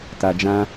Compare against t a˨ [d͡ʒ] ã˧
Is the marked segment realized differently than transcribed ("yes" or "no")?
no